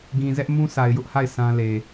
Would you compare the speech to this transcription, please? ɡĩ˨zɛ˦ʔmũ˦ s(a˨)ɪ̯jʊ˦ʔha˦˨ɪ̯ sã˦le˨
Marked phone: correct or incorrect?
correct